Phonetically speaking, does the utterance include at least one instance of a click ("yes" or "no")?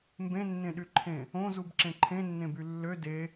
yes